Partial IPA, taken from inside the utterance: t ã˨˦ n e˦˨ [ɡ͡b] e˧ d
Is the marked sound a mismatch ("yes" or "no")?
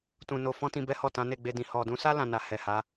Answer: no